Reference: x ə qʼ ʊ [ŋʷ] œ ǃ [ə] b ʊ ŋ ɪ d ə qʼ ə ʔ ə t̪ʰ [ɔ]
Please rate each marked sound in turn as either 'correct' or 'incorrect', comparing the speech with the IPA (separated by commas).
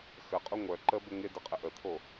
correct, correct, incorrect